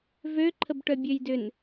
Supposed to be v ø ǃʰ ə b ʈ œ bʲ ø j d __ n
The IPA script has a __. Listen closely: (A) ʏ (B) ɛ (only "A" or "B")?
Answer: A